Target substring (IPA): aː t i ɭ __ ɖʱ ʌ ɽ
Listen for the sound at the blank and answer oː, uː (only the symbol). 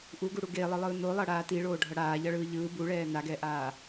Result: oː